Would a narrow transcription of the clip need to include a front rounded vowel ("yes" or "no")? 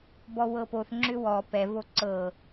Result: yes